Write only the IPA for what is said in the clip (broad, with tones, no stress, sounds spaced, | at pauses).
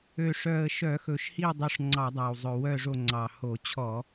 ø˨˩ ʂ œ˨˩ ə̯ ʃ œ˧˩˧ x ɵ˨˩ ʃ h i˦˨ dˤ o˦˨ ʂ ŋ͡ǀ ɑ˧˩˧ dˤ ɑ˨˩ w zˤ ɵ˨˩ w œ˦˨ ʐ o˦˨ ŋ͡ǀ ɑ˨˩ h o˧˩˧ t͡ɕʰ ɔ˧˩˧